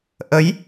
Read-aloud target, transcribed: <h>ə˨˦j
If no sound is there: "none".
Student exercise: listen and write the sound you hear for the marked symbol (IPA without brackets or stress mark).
ʔ